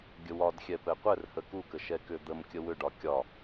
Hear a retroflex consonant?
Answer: yes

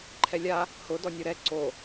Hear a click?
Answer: yes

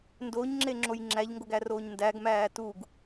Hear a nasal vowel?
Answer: no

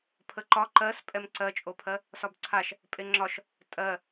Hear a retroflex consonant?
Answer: no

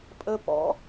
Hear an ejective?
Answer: yes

